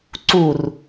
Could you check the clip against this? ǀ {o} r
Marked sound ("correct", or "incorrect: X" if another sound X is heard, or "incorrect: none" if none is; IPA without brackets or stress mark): incorrect: u